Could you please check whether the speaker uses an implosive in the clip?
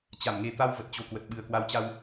yes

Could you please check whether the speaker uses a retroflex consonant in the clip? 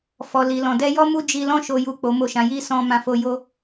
no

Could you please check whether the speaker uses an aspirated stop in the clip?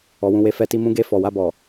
no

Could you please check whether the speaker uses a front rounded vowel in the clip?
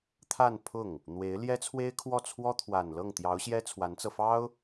no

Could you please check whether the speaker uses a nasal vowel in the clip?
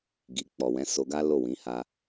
yes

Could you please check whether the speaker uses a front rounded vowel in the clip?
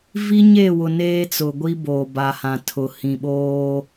no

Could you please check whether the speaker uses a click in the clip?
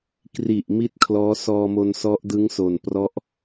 no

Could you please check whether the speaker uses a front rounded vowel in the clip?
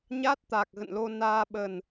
no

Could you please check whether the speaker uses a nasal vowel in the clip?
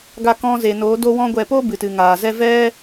yes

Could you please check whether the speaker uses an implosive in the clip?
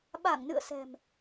yes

